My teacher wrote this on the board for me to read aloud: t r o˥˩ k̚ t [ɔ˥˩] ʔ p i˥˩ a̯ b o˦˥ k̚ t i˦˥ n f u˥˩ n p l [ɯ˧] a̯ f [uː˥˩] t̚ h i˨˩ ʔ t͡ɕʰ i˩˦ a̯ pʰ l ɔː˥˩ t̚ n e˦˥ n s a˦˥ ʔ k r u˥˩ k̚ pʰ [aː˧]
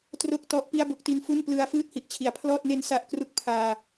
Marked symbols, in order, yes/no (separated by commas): no, yes, no, yes